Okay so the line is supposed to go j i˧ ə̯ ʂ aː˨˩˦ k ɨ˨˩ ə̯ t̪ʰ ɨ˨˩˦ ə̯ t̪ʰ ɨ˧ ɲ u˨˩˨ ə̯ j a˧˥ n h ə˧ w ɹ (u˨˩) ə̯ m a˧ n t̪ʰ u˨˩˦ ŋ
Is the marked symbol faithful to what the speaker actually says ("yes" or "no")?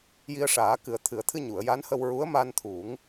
no